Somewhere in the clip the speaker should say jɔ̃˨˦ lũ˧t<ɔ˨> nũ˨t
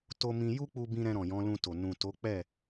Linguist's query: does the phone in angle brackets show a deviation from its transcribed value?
yes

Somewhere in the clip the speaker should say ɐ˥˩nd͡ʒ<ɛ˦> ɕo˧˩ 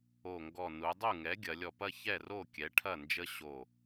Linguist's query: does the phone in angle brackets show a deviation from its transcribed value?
yes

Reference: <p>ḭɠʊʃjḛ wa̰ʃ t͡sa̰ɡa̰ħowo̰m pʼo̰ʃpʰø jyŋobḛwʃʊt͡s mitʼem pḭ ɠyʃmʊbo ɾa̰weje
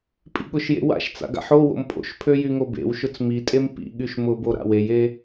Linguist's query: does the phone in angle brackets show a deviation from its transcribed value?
yes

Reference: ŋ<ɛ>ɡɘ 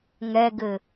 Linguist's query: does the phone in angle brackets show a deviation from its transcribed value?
no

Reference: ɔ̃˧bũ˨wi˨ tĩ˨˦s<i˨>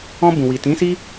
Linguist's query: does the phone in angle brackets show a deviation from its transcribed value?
yes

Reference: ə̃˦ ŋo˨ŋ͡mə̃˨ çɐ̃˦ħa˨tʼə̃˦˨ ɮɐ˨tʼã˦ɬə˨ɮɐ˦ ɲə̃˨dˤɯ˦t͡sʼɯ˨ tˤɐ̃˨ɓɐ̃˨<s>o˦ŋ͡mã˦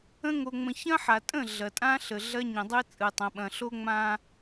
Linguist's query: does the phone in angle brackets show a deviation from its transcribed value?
yes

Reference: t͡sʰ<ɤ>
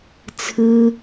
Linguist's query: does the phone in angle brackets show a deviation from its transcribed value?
yes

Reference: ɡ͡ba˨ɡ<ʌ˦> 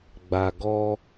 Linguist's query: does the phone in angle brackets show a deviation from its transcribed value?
yes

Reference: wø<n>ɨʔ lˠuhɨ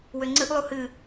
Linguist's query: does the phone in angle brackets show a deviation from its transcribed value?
yes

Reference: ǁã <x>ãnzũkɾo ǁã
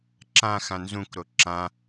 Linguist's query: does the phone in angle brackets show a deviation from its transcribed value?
no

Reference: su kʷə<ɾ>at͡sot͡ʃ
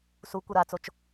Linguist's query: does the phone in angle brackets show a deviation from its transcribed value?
no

